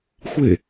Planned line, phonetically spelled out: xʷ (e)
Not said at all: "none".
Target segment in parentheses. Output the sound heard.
e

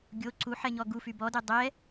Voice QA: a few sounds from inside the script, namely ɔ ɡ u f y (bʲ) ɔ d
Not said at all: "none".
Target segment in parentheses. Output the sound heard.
b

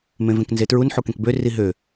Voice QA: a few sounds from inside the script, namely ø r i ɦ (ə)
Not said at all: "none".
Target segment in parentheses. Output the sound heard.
ø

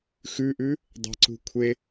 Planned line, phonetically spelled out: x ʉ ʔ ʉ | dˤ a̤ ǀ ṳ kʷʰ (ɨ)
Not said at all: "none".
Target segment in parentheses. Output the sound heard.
e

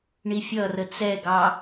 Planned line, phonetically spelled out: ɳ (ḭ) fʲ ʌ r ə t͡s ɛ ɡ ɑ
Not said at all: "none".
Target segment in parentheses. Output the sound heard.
i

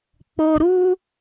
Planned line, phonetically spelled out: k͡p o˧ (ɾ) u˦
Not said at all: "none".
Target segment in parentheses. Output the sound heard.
ɾ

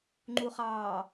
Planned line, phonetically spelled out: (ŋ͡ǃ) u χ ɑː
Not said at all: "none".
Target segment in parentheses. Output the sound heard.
ŋ͡ǃ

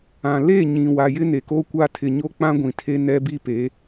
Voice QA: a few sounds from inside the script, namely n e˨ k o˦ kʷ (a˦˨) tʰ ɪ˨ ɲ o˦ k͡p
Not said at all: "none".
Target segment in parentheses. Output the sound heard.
a˦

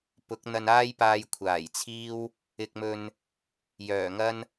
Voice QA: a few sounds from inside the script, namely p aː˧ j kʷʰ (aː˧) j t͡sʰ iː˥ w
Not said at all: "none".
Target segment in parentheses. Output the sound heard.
aː˨˩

